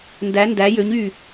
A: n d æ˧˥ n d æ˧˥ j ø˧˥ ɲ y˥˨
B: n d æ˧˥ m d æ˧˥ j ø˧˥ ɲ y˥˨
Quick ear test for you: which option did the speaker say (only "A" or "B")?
A